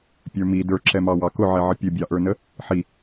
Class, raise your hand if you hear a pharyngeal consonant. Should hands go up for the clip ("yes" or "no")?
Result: yes